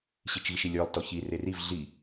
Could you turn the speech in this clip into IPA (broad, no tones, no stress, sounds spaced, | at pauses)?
ɕ i t͡ʃ ɣ i ʃ i lʲ ə˞ lˠ t ɔ ç i r e r i v ɮ i